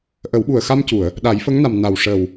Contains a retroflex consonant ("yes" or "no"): yes